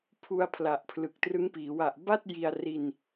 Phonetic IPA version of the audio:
pʰ u˧ a̯ pʰ l a˨˩ ʔ pʰ l ɯ˨˩ k̚ t r ɯ˦˥ ŋ p iː˩˦ w a˨˩ ʔ b a˥˩ t̚ j i˧ a̯ r i˧ n

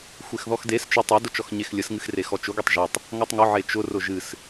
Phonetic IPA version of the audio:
xʷ e x ð ɔ x d e s t͡ʃ ʊ tˤ e d ʊ t͡ʃ ɔ x ɲ e x lʲ ə s ŋ ɨ x r e x ɔ t͡ʃ ʊ ɡʷ e tˤ ʒ ɔ tˤ | ŋ ɔ tˤ ŋ ʊ ʕ e t͡ʃ ʊ r ʊ ʒ ɨ s

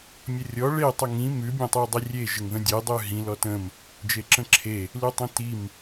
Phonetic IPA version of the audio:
mʲ ə rʲ ɔ ɭ e tˤ ə ŋ ĩ m ʉ bʲ ə̃ tˤ i u̯ dˤ i rʲ e ʒ ə ŋ ð ə̃ dʲ e dˤ ʉ ɦ ĩ l ɔ t ə̃ m | d͡ʒ e ǁ ə̃ ǁʰ e | l ʉ tˤ ĩ t i m

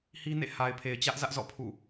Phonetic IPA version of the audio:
h i˦ n ḛ˦˨ h a˨ ɪ̯ pʰ e˨ ɪ̯ t͡ɕ ä˦ ʔ z ä˦ ʔ z ɔ̰˦˨ pʰ ṵ˦˨

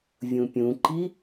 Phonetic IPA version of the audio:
vʲ ũ pʲ ũ ǃ i

